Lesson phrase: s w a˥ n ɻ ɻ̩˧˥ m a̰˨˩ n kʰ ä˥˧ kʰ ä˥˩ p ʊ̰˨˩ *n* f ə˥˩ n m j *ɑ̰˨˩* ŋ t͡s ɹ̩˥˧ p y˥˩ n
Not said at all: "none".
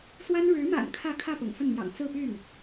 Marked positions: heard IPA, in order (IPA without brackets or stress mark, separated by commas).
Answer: ŋ, ɑ̰˨˩